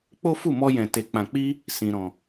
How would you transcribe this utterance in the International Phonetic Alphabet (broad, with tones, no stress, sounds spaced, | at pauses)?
k͡p o˦ f u˦˨ m ɔ˧ j ɛ̃˨ t e˨ k͡p ã˨ k͡p i˧ | s ĩ˨ ɾ ɔ̃˨